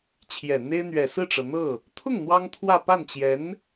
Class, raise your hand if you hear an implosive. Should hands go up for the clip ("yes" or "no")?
no